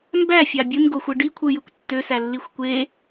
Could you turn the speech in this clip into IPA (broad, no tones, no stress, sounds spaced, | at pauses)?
m b æ fʲ ɑ bʲ ɯ n ɡ o xʷ ɯ ɖ i kʷʰ ɯ j ɯ kʷ tː ø s æ lː i xʷ kʷ e